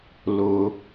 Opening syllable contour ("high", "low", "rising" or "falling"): high